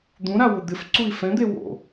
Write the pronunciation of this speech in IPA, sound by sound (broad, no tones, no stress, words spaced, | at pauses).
d̪ũɾawʊ d̪ɪfǀui̯ fɛ̃d̪e wo̰